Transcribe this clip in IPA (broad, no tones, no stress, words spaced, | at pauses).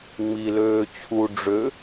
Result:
ŋ͡mi løːt͡ɕʰu ɖ͡ʐø